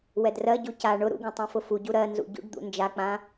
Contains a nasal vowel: yes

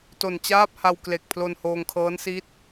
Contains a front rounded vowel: no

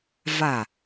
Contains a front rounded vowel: no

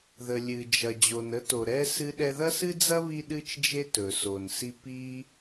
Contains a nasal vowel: no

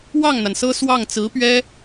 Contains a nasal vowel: no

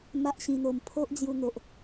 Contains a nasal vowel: yes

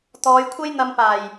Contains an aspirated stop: yes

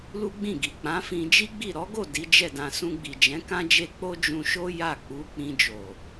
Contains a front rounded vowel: no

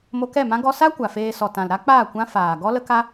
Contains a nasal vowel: yes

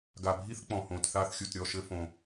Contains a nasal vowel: yes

